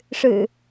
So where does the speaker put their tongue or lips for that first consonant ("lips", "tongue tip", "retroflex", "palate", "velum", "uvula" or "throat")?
retroflex